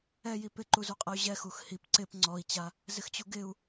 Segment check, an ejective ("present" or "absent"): present